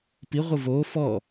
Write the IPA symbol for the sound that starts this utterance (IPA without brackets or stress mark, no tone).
p